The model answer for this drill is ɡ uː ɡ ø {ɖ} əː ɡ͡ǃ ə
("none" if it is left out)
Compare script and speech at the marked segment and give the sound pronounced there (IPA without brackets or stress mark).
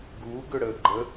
ɽ